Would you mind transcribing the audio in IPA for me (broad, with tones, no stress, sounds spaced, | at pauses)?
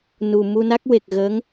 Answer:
n u˨˩ m u˧ n a˦˥ k̚ w e˨˩ k̚ ɣ ə˧˥ ŋ